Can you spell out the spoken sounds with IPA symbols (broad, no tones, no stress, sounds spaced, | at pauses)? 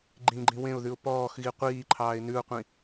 ɡ͡ǃ ĩ ɡ͡ǃ ĩ w ẽ ʊ̯ ð ʉ ʊ̯ p ɔː x ɣ i qʷ iː ǃʰ ɑː ɪ̯ n ʉ ʊ̯ qʷ ĩ